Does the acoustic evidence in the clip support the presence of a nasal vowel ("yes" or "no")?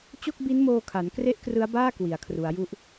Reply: no